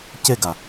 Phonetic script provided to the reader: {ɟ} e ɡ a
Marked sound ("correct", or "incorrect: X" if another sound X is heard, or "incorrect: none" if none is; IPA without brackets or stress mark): incorrect: c